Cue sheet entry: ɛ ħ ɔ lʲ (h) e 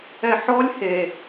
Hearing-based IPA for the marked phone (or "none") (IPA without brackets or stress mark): h